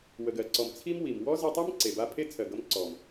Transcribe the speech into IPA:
w ə˨ ɡ ɜ˨ ǀ ɔ˨ m t͡sʰ i˦ m w i˨ m w ɔ˦ z e˧ tˤ ɜ˦ m ǀ e˨ b a˦ pʰ e˦ t͡sʰ ɜ˨ ɡ ʌ˧ m ǀ ɔ˨ m

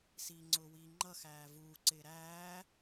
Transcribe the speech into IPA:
s iː ŋ͡ǀ ʊː w iː ŋ͡ǃ ʌ x æː v uː ǀ ɪː ɾ æː

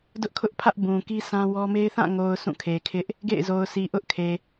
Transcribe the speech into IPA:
d ʊ˦ ʔ kʰ ʊ˦ ʔ pʰ ä˦ ʔ b ũ˨ k i˦ s ã˦ w ɔ˦ m e˦ ɪ̯ θ ã˦˨ ŋ o˨ ʊ̯ sʰ ũ˦˨ kʰ e˨ kʰ ɪ˦ ʔ | ɡ ḛ˦˨ ɪ̯ z o˨ ʊ̯ s i˨ ʔ ʊ˦ ʔ kʰ e˨

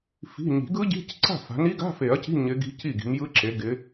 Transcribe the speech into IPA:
f i̤˧˥˧ ɲ i̤˨˩˦ ɡ ɯ˦˥ ɟ i̤˧˥˧ c ǀ a̤˥˨ f a̤˨˦ n i˦˥ ɡ a̤˧˥˧ f e˨˩˦ ɐ̯ c i̤˧˥˧ ɲ ɪ˦˥ ɡ i̤˦˥ c i˥˨ ɡ i̤˨˦ m j ɯ˦˥ ǁ e˨˦ ɡ ɪ˨˦

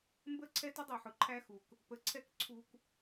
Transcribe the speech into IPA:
m b ə˦ ǀʰ ɛ˦ t ə˦ dˤ i˨ ħ ʊ˨ ǃʰ æ˦ x u˨ k | p ə˨ ǀʰ ɛ˦˨ k ǀʰ u˦ k

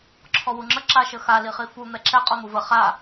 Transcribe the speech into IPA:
ǁʰ ɔ w u ŋ͡ǁ ə ǁ a ʃ ə x a l i χ i f u n̪ ɛ ǁ ɛ qʼ ɔ n̪ u v ə χ a

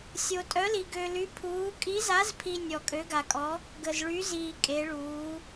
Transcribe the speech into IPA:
sʲ o˧ tʼ œ˧˥ l i˧ ɡ ø˧ l y˧˥ pʰ uː˧˥ kʼ i˧˥ z a˧˥ z pʰ i˧ nʲ ɔ˧ kʼ ø˧˥ ɡ a˧ kʼ ɔ˧˥ | ɡ ə˧ z ɭ y˧˥ z iː˧ kʼ e˧˥ ɭ uː˧˥

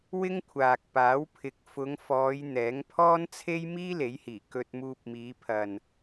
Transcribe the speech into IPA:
w ɪ˥ ŋ kʷʰ aː˨ k̚ p aː˨˥ w pʰ ɪ˨ k̚ f ʊ˨˧ ŋ f ɔː˨˧ j n̪ ɛː˨˥ ŋ pʰ ɔː˥ n t͡sʰ e˥ j m iː˥ l e˨˥ j h iː˨˩ k ɵ˧ t̚ m uː˧ p̚ m iː˨˧ pʰ ɐ˨ n

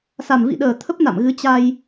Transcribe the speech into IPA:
s a˨˩ m v ḭ˧˨ ɗ əː˨˩ t̪ʰ ə˦˥ p̚ n a̰˧˨ m ɣ ɨ˨˦ t͡ɕ a˧ j

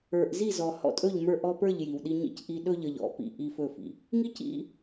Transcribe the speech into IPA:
ə˞˨ ʔ z i˦˨ z ɔ˨ h ɔ̰˦ tʼ ɵ˦˨ ʎ m ə˞˦ ʔ ɔ˦ p ə˞˦˨ ʎ j i˨ w ɗ i˦ ɲ ḭ˦ c ʔ i˦ ɗ ɵ˦ ʎ ə˨ ʎ ɔ̰˨˦ p ḭ˨ ʔ i˦ f ɵ˦˨ f ḭ˨ | ŋ i˦ c ḭ˦

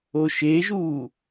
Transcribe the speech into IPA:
o ʃ e ʒ uː

